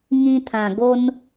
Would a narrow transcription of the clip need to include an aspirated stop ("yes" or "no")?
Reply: yes